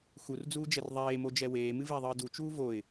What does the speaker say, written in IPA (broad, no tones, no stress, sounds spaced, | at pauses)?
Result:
x u r d͡z uː d͡ʒ ɛ r ðˤ eː m o d͡ʒ ɛ w eː m ɨ v e ðˤ ɨː d u t͡ʃ uː v o ɪ̯